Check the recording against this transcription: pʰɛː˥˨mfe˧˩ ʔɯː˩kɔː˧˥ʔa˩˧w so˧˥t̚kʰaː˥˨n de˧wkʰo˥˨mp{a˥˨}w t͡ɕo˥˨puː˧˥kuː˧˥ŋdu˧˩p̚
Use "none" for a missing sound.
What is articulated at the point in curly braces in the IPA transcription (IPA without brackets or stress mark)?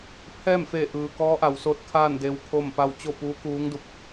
a˥˨